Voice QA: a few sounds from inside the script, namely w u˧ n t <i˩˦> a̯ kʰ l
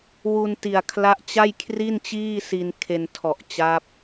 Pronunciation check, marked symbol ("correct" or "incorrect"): incorrect